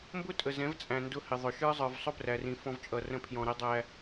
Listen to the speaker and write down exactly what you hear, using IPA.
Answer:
m b ʊ˦ tʼ ə˨ z ɛ̃˨˦ v t͡sʼ æ̃˨ n d ʊ˦ h ɪ˨ ðˤ ʊ˨ ʃ ə˞˦ zˤ ə˞˨ v sˤ ʊ˦ p r æ˨ r ĩ˨ f ɔ̃˦ v t͡ʃʼ ʌ˨ r ə̃˦ pʰ j ɔ̃˨ ɾ ɛ˦ dˤ æ˨

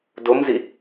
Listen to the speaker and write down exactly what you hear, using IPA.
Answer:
d o m z i

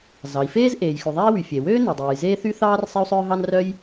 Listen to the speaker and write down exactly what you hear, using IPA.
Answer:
z ɑ˩ i̯ f eː˥ z ʔ eː˩ j x ʉ˩ ðˤ æ˥ i̯ w y˩ fʲ e˩ w øː˥ n e˩ dˤ øː˩ j z eː˥ θ y˥ θ ɑː˥ r sˤ e˥ u̯ sˤ œː˥ ɦ ɑ˥ n r œ˥ j

